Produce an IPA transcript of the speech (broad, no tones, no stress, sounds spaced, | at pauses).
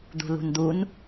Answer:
d̪ ṳ l ṳ n d̪ u n